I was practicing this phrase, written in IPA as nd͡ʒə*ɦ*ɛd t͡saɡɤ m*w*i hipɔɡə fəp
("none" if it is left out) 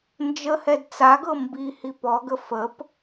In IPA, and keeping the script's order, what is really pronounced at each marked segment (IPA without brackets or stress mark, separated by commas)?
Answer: h, b